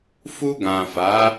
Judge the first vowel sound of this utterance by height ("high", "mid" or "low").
high